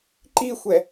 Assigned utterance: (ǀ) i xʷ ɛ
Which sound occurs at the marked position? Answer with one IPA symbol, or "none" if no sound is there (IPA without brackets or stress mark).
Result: ǃ